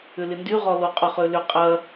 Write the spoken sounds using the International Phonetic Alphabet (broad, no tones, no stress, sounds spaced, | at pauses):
ʏ l ɪ n d y ʁ ɔ l o qʼ ʊ χ ø l ʏ qʼ ɐ